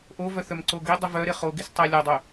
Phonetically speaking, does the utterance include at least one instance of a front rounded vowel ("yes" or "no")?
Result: yes